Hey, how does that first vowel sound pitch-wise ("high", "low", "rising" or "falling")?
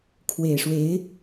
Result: low